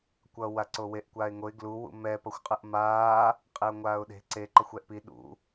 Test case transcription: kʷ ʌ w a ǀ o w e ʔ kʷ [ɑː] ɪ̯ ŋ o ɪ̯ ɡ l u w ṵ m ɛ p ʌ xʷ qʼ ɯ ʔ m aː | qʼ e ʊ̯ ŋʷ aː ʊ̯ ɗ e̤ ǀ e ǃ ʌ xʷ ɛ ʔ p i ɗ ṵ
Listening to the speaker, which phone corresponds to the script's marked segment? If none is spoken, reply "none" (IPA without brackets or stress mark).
aː